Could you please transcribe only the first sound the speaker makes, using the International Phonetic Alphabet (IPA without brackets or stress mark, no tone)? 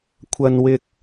kʷʰ